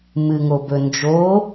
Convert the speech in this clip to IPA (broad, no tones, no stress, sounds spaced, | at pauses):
m ɨ ŋ o b ɵ n d͡ʒ o